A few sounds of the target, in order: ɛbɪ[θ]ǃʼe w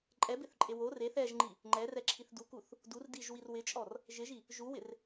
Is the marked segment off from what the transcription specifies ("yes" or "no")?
no